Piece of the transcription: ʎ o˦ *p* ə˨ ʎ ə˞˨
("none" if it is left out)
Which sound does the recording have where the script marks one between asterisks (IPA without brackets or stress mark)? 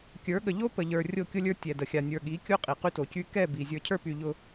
p